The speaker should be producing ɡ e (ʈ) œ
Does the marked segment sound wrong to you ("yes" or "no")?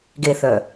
yes